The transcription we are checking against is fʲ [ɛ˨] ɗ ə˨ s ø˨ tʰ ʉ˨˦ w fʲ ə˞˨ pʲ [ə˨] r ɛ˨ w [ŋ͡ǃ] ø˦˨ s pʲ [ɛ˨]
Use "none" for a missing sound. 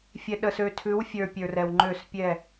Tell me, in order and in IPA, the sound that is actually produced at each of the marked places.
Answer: ɛ˨, ə˞˨, ŋ͡ǃ, ɛ˦˨

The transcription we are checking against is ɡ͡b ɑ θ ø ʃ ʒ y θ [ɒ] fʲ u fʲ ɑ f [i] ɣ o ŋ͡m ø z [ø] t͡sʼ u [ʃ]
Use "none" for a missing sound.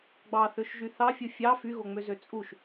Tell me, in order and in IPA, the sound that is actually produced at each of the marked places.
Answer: ɑ, y, ø, ʃ

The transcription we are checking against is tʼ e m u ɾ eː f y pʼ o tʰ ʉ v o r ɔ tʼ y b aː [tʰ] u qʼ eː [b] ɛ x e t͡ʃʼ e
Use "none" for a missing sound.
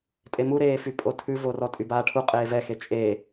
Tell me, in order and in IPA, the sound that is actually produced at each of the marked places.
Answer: ʈʰ, v

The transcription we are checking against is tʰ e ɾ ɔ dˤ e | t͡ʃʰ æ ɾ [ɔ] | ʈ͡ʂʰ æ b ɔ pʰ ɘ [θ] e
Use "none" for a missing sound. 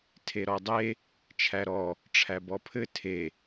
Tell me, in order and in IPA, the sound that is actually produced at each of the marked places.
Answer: ɔ, tʰ

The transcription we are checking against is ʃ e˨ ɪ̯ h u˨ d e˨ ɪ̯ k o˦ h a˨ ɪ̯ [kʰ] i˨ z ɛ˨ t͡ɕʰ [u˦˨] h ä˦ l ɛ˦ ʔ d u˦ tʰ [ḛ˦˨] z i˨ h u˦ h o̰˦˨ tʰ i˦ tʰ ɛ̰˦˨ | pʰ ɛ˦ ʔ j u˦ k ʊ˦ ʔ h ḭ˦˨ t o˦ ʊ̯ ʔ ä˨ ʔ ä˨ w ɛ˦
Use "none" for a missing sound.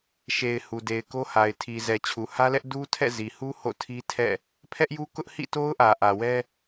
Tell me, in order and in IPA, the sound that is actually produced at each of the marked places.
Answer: tʰ, u˨, ɛ̰˦˨

